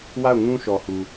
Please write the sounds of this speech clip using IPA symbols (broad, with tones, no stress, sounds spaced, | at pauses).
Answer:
w a˦˨ ʊ̯ ŋ ũ˦ ʃ ɔ˨ h u˨